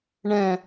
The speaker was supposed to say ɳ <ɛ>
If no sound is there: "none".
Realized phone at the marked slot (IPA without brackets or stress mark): ɛ̃